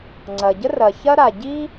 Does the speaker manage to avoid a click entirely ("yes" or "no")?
no